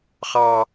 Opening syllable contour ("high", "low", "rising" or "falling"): high